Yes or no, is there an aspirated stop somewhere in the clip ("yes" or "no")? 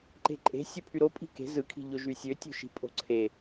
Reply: yes